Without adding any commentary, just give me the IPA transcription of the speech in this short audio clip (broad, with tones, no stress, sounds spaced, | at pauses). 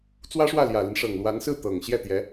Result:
t͡s w ä˥ ʂ w ä˥˩ l j ä˨˩ l i˦ n ʂ ɤ˨˩ ŋ l w a˧˥ n s ɹ̩˥˩ t̪ ɤ˨˩ ŋ ɕ j ɛ˥˩ t̪ j ɛ˧˥